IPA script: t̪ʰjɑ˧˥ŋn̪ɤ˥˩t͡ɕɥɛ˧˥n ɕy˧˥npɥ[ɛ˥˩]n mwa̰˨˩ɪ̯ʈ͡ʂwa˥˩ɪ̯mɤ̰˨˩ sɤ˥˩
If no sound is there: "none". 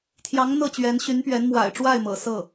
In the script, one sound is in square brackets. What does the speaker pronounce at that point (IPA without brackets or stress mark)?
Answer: ɛ˧˥